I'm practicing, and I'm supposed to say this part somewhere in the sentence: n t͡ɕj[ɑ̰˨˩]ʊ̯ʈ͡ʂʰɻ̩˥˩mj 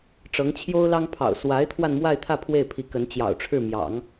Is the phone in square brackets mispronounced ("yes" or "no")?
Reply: no